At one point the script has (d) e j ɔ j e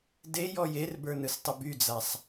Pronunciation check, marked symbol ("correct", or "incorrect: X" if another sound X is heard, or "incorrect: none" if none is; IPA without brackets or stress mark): correct